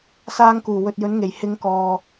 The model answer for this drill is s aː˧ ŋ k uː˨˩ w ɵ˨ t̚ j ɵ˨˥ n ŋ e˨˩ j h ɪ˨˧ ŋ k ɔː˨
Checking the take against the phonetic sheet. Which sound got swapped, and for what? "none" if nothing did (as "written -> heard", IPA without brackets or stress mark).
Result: none